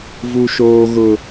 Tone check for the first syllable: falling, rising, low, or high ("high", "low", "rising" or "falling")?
high